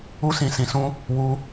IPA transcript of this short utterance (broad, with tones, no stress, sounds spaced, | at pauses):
u˦ s ĩ˧ s ĩ˧ s ũ˦ | w u˧